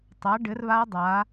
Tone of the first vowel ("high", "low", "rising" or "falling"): rising